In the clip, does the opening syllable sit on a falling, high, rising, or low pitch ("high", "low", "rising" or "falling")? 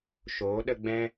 rising